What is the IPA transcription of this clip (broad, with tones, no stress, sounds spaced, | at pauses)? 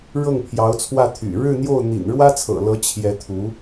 ɻ ɤ˥˩ ŋ pʰ j ɑ˧˥ ʊ̯ t͡sʰ w ä˥˩ t̪ʰ y̰˨˩ ɻ ɻ̩˥˧ n̪ j o˥˩ ʊ̯ n̪ ḭ˨˩ n ɻ w ä˥ t͡sʰ ɤ̰˨˩ l ɤ˧˥ t͡ɕʰ j ɛ˧˥ t̪ʰ u˧˥